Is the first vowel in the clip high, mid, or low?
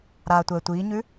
low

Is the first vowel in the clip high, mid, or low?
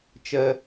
mid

